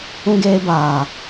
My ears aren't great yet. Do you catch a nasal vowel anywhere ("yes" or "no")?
yes